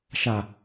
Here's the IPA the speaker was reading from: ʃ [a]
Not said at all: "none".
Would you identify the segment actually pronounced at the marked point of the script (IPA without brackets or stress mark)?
a